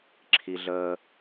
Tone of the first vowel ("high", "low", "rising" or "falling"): low